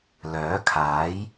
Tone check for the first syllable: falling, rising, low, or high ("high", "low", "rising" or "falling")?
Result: rising